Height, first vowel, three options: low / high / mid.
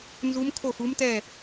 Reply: high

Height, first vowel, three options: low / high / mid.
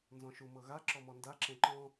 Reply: mid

